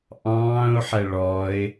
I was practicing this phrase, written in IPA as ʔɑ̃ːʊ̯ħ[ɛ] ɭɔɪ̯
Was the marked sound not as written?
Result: no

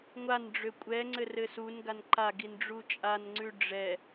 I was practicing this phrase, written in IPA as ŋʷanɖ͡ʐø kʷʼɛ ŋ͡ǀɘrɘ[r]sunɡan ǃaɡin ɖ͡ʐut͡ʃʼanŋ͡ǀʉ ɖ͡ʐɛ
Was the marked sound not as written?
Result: yes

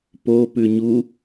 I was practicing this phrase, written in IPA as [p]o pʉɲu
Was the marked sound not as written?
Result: no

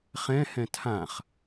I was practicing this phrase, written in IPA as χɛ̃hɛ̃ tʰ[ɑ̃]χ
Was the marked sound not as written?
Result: yes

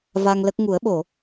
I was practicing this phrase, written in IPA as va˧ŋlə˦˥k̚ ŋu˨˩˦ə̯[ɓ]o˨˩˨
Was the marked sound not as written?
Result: no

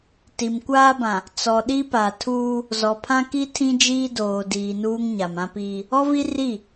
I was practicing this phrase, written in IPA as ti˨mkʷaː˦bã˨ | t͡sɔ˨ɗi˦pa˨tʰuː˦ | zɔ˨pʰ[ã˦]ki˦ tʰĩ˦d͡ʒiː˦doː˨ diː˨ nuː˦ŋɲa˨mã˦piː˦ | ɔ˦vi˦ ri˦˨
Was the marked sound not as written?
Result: no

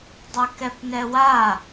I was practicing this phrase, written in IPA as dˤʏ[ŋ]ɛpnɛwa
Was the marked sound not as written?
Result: yes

